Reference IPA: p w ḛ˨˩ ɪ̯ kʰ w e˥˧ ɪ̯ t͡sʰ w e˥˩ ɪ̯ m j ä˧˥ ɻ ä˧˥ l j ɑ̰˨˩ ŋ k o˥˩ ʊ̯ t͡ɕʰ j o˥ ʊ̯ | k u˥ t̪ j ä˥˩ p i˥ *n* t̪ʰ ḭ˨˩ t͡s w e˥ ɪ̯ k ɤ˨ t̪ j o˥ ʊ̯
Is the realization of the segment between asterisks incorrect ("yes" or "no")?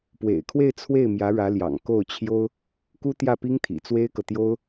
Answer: yes